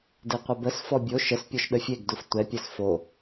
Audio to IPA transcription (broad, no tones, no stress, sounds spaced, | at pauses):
d e qʷ ɐ b ə s f ɔ bʲ o ʃ ə s pʲ ɔ ʃ ɗ ə fʲ e ɡ d u f tʷ ɛ pʲ ɛ s f o